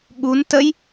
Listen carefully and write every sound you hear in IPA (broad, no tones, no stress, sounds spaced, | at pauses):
ɠ u n t ə j